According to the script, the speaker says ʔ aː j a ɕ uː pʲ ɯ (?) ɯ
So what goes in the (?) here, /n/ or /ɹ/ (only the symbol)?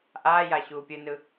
n